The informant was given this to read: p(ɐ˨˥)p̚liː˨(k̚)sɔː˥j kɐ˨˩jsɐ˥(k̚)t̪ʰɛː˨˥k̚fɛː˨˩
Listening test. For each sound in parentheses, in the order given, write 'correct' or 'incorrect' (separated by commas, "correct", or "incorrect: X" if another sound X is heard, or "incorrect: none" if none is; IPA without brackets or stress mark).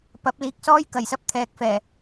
correct, correct, incorrect: p̚